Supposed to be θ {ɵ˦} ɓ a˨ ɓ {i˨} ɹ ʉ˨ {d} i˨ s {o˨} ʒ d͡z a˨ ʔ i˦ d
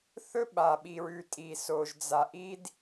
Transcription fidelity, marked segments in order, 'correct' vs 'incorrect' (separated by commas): correct, correct, incorrect, correct